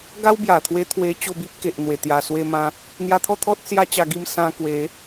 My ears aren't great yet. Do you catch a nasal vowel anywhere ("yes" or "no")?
yes